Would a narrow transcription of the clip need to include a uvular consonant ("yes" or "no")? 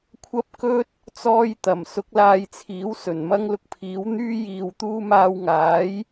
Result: no